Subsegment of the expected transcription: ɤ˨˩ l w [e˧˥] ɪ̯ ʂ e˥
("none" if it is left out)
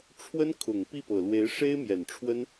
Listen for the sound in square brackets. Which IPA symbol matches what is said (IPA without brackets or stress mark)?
e˧˥